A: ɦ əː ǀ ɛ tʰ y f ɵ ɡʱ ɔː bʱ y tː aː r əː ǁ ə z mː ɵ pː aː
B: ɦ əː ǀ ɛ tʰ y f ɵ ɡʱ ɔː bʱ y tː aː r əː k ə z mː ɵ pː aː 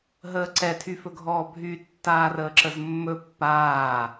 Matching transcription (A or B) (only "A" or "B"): A